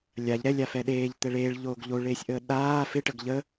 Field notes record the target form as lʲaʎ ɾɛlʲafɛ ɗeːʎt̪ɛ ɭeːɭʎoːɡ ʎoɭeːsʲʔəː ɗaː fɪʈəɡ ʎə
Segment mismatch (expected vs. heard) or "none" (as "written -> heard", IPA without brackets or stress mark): none